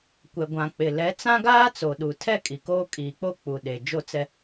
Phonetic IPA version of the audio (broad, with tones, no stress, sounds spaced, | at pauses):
kʷ ɛ˨ ɡʷ ã˨ k͡p ɪ˨ l ɛ˨˦ t͡s ã˦ ɡ aː˦ t͡s o˨ ɗ u˨ tʰ ɛ˦ kʼ i˨ k oː˦ kʼ iː˨ k͡p o˦ k͡p u˨ ɗ e˨ d͡ʒ o˦ t͡s ɛ˦